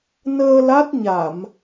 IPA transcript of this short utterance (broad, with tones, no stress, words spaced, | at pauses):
nəː˧ la˦˥t̚ɲa˧˩˨m